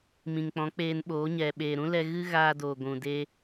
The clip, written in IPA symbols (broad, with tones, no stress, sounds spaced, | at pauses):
m ĩ˨ ŋ k͡p ɔ̃˨˦ k͡p eː˧ n ɓ oː˨˦ ɲ ɛ˨ ɓ eː˨ ɾ ũ˦ l ɛ˧ ɣ ɨ˦ ɣ aː˧ d oː˨ ɡʷ ũ˨ d e˧